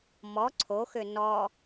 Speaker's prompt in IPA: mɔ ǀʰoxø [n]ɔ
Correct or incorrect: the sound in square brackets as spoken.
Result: correct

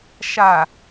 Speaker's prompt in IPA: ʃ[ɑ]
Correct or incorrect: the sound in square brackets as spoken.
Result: incorrect: a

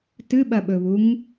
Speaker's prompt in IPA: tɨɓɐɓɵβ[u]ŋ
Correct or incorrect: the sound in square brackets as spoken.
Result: correct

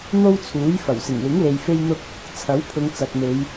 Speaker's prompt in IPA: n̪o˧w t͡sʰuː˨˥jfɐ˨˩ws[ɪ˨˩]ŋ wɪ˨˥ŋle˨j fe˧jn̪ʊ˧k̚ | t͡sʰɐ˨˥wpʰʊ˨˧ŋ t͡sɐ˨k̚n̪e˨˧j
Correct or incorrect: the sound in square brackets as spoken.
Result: correct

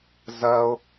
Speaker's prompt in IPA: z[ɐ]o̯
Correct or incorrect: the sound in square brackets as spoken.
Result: correct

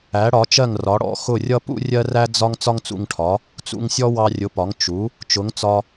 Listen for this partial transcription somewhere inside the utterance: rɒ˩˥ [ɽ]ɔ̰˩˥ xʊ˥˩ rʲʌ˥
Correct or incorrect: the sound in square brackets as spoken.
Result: correct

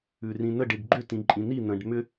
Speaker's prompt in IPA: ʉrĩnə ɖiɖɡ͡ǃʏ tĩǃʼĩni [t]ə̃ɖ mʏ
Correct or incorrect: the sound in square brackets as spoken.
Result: incorrect: n̪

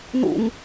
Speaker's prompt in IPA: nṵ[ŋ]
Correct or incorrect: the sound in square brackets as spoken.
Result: correct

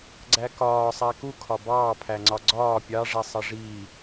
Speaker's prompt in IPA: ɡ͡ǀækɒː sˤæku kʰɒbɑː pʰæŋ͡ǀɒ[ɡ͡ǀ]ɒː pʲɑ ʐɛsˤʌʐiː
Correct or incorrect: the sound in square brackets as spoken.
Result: correct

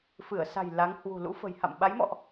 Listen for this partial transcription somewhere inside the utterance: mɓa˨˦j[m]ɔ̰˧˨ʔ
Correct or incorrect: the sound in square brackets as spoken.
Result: correct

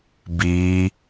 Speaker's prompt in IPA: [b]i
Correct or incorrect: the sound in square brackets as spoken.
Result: correct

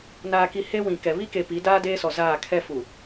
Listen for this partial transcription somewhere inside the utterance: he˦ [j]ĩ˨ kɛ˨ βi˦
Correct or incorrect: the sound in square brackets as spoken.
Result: incorrect: w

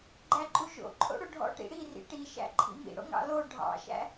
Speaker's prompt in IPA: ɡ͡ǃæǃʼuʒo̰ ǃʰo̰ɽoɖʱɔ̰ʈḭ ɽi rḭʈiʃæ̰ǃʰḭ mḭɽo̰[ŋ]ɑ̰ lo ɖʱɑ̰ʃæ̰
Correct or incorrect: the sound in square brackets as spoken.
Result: correct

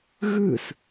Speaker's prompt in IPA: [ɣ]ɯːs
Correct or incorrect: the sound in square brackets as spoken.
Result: correct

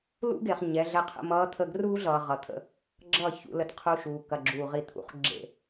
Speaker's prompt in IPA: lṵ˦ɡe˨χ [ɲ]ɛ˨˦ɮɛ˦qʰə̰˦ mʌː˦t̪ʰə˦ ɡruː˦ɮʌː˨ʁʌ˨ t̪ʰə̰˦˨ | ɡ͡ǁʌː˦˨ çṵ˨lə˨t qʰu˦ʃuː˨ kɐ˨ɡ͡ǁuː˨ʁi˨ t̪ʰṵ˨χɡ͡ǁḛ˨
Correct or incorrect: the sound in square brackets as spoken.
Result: correct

